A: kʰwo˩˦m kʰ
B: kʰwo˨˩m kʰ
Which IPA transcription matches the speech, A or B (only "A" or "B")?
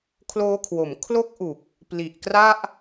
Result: A